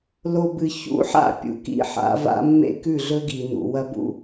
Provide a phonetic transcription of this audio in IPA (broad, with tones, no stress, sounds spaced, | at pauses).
l o˨ b ɨ˨ ç ṵ˦ ħ a̰˦˨ pʲ ṵ˨ k ḭ˦ ħ a̰˨˦ v a̰˦ mː ḛ˦ k ʉ˦˨ ɮ ɵ˦ ɡ i˨ n ṵ˨ w ɐ˦ b ṵ˦